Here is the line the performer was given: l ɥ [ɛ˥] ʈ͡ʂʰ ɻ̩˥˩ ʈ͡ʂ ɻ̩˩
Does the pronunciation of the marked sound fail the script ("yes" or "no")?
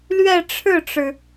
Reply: yes